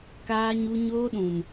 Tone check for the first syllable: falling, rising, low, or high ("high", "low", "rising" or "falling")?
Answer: high